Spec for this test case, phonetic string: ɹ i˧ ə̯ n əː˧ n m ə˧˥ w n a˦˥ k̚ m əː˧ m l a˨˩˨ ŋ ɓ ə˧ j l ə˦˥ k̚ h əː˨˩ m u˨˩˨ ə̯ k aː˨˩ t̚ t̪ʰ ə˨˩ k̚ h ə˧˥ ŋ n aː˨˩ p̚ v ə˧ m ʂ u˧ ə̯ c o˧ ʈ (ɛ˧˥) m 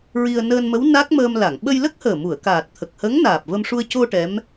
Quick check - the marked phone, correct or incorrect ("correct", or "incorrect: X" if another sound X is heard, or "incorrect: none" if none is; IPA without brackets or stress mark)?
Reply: correct